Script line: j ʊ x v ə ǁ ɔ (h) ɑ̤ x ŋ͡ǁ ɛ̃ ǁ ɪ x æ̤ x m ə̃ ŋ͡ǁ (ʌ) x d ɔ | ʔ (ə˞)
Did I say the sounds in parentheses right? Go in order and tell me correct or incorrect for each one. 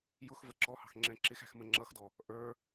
correct, correct, correct

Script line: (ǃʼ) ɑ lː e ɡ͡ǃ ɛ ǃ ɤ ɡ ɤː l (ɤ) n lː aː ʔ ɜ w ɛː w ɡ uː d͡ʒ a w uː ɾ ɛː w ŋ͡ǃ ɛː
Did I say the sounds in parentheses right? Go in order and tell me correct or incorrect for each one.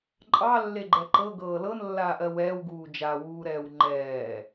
correct, correct

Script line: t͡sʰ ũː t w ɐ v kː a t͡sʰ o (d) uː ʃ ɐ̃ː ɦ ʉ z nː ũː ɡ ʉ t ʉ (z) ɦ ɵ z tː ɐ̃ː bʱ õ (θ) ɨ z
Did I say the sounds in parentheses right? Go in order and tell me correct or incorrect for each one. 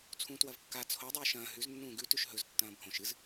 incorrect, incorrect, incorrect

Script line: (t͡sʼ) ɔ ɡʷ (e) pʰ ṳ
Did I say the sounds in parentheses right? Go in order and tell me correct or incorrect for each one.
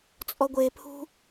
correct, correct

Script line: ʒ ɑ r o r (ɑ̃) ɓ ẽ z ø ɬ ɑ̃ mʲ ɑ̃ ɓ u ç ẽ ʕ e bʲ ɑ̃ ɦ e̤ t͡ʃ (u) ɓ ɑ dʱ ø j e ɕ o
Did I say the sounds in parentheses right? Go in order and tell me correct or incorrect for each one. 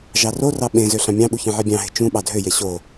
incorrect, incorrect

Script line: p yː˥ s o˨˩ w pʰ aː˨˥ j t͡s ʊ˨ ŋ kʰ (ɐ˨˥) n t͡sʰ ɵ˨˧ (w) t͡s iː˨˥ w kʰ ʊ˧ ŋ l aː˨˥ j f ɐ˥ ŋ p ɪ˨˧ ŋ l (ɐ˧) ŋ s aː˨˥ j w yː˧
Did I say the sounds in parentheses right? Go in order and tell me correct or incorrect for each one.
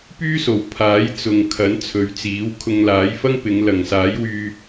correct, incorrect, incorrect

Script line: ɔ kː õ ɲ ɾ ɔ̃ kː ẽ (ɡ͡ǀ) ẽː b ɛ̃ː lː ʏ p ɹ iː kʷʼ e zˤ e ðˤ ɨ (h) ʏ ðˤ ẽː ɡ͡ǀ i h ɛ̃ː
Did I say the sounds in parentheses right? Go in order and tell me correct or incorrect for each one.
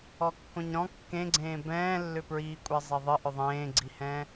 correct, incorrect

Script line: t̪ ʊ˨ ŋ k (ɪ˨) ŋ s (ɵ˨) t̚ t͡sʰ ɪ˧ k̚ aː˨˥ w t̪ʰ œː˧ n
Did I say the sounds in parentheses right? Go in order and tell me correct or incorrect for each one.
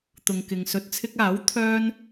correct, correct

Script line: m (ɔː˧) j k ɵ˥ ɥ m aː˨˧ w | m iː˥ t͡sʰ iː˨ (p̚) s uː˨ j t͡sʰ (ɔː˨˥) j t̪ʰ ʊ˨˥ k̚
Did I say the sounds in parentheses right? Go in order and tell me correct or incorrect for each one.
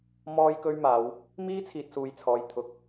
incorrect, incorrect, incorrect

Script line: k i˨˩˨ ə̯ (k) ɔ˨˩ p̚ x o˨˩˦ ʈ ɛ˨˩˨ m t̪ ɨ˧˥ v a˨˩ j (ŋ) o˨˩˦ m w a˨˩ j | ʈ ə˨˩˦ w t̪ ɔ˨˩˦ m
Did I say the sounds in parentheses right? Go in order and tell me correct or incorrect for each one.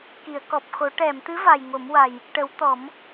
correct, correct

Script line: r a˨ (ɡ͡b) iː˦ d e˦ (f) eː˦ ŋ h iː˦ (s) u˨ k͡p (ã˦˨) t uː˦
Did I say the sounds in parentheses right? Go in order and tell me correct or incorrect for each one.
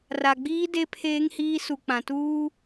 correct, incorrect, correct, incorrect

